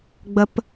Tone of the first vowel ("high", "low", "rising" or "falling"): high